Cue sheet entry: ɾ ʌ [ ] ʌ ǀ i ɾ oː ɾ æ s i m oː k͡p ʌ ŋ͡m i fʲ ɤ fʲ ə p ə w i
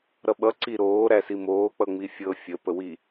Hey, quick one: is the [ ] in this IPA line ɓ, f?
ɓ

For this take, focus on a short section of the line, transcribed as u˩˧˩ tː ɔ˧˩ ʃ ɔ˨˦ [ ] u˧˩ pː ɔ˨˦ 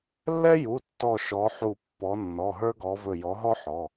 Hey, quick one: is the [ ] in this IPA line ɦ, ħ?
ħ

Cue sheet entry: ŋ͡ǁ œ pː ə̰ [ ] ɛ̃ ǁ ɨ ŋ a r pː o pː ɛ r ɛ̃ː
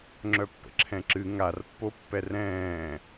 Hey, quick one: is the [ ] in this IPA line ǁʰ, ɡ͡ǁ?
ǁʰ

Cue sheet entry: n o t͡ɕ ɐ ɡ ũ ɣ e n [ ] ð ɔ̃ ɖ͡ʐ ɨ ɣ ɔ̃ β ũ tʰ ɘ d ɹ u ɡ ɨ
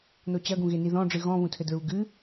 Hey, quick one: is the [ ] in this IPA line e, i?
i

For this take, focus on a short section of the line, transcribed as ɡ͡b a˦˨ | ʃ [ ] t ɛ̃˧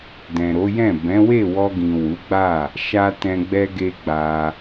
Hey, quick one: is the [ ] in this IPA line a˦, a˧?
a˧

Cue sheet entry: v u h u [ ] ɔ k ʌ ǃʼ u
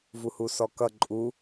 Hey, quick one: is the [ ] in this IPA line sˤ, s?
s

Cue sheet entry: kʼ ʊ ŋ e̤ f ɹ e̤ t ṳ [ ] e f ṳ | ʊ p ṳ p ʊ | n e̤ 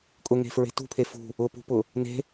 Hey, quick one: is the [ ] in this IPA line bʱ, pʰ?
pʰ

